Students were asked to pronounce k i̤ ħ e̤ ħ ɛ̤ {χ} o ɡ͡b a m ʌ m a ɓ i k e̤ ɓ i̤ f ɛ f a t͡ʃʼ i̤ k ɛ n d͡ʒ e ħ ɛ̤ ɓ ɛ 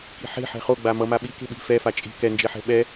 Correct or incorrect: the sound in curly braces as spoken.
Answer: correct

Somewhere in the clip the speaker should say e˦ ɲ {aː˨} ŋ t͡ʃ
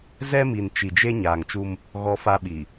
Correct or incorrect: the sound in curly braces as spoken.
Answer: correct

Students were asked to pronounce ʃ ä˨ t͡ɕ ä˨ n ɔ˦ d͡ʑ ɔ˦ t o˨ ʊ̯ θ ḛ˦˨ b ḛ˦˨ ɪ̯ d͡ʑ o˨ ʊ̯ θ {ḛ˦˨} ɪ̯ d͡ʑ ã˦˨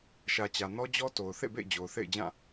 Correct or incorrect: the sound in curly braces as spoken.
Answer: correct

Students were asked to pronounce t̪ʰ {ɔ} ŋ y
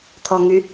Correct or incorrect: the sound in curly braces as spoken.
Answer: correct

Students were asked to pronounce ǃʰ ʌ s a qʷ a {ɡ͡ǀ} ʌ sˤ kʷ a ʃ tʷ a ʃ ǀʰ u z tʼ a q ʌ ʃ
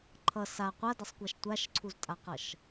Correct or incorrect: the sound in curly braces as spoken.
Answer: incorrect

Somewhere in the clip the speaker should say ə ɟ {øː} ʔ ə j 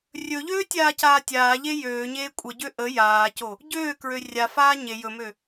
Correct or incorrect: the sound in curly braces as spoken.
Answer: incorrect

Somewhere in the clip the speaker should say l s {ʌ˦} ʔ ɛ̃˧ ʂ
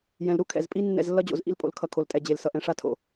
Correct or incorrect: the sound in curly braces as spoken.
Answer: incorrect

